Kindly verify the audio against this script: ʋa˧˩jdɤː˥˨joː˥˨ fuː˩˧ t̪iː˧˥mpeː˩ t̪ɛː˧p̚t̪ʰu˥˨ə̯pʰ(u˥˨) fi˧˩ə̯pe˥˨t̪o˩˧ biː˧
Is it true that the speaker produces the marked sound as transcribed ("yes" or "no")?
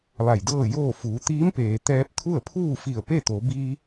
no